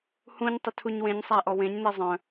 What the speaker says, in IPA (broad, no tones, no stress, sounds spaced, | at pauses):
h ũ ɲ tˤ ʏ tʰ u ɲ w ẽ ɲ sˤ æ ʔ ɔ w ẽ ɲ n e zˤ œ̃